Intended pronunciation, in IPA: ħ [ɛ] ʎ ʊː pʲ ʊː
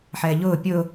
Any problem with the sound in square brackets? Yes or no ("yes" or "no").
yes